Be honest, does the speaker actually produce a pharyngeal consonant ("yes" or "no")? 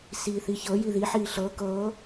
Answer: yes